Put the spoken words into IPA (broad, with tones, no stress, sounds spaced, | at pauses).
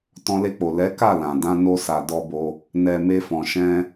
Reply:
t ɔ̃˧ l e˧ k͡p o˨ l ɛ˨˦ k a˦˨ l ã˨ d ã˧ n o˧ s a˨ d ɔ˧ b o˧ | n ɛ˨ m e˧ f ɔ̃˨ ʃ ɛ̃˧